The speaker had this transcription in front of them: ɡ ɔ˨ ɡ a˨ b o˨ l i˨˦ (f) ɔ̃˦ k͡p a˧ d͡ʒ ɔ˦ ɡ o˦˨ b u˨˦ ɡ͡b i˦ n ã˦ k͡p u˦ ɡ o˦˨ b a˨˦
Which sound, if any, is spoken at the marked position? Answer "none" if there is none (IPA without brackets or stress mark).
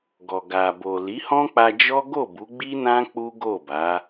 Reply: h